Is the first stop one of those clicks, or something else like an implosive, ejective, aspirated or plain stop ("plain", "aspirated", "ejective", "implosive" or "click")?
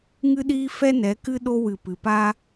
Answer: implosive